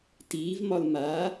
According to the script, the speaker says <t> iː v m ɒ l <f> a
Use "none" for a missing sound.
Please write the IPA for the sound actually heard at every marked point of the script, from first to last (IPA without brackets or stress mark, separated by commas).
t, m